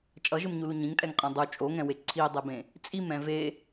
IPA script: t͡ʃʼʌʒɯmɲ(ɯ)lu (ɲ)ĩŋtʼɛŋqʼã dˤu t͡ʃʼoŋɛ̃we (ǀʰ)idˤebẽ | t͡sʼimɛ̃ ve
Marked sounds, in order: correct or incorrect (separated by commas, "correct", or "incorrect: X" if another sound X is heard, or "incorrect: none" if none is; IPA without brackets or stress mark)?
incorrect: u, correct, correct